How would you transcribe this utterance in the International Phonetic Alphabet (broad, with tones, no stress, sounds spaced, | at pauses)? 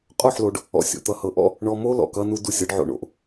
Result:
qʼ o˦˨ ħ l o˨ ɖ | ɔ̰˨ sʲ o̰˨ t̪ ʌ˨ h ɤ˨ ʔ ɔ̰˦ | ɳ ɔ˨ m o˦ l ɔ̰˨ k ʌ˦ n u˦ d u˦˨ sʲ ɤ˦ ɖ ʕ o̰˨ ɳ o̰˨ ʔ